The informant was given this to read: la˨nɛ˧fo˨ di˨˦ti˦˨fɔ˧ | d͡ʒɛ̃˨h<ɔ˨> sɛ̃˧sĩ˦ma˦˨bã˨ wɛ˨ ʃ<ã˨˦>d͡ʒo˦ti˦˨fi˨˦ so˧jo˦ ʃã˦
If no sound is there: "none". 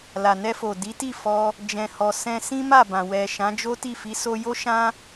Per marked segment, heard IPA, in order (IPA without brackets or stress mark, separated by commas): ɔ˨, ã˨˦